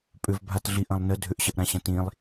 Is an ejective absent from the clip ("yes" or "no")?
no